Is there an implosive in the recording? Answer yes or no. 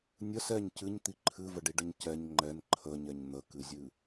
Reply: no